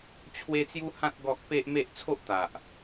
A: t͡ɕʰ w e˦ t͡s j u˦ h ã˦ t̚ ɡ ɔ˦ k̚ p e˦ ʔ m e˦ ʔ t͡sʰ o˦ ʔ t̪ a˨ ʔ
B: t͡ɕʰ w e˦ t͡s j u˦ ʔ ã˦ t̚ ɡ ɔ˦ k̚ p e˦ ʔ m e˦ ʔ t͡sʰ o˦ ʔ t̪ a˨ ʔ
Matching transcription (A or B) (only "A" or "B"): A